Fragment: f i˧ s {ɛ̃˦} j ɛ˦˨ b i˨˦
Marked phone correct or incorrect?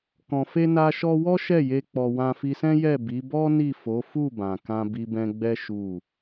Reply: correct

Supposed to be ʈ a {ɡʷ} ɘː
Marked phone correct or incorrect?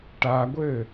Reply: correct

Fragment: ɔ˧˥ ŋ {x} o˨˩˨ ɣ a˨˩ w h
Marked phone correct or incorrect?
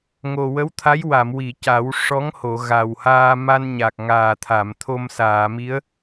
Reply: incorrect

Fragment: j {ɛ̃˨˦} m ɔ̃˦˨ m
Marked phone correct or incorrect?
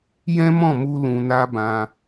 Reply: incorrect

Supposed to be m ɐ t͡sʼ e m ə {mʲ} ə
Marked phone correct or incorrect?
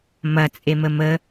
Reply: incorrect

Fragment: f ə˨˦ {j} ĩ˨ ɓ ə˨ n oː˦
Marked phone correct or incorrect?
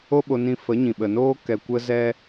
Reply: incorrect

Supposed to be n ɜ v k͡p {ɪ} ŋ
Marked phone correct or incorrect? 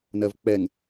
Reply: incorrect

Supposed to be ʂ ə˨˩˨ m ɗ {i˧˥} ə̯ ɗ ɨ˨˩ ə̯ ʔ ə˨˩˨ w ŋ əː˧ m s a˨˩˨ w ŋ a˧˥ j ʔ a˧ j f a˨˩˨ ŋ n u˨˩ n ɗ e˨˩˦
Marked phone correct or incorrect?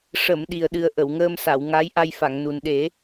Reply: incorrect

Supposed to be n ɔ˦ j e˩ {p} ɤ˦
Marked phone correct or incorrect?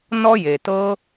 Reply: incorrect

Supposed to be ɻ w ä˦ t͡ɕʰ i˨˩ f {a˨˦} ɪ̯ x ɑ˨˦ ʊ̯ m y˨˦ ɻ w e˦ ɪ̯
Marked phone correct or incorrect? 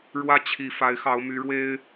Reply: correct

